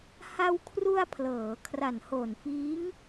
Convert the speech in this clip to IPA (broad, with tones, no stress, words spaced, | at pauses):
ha˧wkʰru˧a̯ pʰlɤː˩˦ kʰra˨˩nhoː˨˩nfiː˦˥ŋ